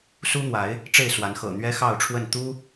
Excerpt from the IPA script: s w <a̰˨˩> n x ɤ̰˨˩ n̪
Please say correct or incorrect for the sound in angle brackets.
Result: incorrect